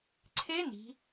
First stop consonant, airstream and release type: click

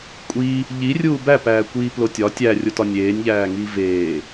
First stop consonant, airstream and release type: ejective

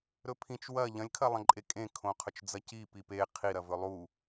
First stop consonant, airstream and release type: aspirated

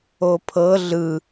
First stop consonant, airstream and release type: aspirated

